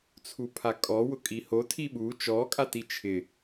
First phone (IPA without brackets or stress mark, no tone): t͡sʰ